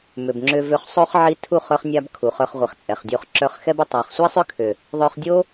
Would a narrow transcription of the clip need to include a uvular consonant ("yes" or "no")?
yes